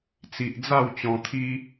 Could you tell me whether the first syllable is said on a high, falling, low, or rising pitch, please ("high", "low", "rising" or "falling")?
low